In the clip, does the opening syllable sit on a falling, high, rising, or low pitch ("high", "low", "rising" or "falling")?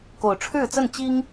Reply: low